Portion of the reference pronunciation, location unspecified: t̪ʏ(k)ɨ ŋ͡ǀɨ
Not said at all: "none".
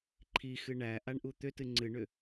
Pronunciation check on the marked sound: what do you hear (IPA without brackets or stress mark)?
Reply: t